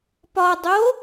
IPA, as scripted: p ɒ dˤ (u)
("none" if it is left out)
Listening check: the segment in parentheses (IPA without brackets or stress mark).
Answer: o